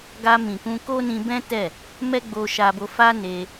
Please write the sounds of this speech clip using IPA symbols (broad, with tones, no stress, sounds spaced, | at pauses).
ɡ a˧ m ĩ˨ k ũ˧ k o˦ n ĩ˧ b ɛ̃˦ t ɛ˦˨ | m ɛ˦ ɡ͡b o˧ ʃ a˧ b o˧ f a˦ n e˧